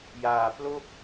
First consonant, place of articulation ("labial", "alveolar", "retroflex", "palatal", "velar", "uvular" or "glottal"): palatal